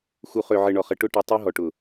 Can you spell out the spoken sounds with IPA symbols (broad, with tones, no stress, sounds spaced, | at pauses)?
x u˨ χ ø˨ ʕ ɘ˨ ɳ ɔ˨ χ ə˨ ʈ ʊ˦ ʈ i˨ tˤ u˦ ɦ ɔ˨ ʈ ʊ˨